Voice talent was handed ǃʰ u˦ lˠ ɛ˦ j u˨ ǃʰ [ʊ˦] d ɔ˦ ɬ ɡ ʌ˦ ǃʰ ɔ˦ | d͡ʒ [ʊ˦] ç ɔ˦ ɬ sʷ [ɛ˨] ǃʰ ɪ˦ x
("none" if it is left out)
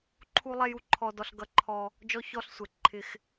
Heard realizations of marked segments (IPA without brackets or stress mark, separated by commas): ɔ˦, ɔ˦, ɛ˨